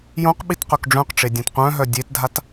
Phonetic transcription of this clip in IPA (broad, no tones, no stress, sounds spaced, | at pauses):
j õ q ɓ i t q œ k ɖ͡ʐ œ̃ q ʈ͡ʂ e dʲ œ̃ t qʷ œ̃ ɦ œ dʲ e t dʱ a t